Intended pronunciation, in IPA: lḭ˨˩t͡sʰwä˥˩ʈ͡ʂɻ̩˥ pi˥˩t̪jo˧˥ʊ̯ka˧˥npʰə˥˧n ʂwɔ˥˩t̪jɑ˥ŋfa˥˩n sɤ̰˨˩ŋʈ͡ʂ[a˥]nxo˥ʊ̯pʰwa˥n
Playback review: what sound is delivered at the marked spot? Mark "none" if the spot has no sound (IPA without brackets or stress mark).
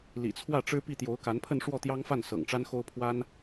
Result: a˥